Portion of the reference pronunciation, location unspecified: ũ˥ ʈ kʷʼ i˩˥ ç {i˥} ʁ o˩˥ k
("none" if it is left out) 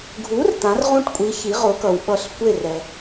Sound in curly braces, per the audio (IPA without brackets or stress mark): i˩˥